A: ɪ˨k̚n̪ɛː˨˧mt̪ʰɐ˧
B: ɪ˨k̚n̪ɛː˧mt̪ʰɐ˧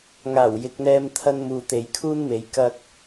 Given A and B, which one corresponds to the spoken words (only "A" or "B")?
B